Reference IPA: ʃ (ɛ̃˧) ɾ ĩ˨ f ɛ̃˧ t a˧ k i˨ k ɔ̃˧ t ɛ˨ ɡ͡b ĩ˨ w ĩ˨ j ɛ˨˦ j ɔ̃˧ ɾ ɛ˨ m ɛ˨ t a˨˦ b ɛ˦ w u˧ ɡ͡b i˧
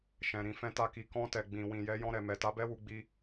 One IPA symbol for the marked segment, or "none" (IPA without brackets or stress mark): ɛ̃˨